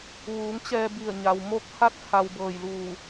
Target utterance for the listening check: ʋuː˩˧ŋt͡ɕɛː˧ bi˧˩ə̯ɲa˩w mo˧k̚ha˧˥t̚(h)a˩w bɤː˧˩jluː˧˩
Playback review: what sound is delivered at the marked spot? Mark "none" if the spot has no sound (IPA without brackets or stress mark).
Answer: h